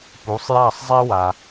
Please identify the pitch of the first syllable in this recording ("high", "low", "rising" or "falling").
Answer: rising